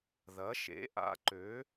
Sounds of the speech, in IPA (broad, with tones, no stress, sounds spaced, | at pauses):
ð ɐ˨˥ ʃ ḛ˨˥ ʔ a̰˨˥ ǃ ø˨˥